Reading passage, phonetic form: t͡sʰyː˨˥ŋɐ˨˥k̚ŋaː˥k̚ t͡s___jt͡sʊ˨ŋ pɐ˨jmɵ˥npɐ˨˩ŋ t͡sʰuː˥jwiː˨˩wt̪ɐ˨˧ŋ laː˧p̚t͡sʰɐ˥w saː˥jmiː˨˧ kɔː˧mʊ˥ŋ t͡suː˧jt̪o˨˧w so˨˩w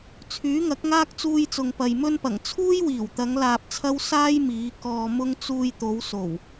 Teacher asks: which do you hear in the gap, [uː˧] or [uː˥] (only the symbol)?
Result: uː˧